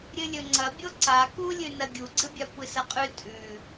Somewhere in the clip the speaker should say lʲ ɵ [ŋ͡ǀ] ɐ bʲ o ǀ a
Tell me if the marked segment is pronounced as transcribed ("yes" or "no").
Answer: yes